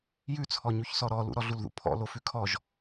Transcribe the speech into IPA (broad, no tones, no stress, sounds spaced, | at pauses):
j ʉ t͡sʰ ɔ ɲ u ç s ɔ ɾ ɔ l ṵ ɾ ɔ ɮ u l ð ṵ pʰ ɔ̰ l o f ʉ kʰ ɔ ʒ